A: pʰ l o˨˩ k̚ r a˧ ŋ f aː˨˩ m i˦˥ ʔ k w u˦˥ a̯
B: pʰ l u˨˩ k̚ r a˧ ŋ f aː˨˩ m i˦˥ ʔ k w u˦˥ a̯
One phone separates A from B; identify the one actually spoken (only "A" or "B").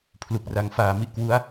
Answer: B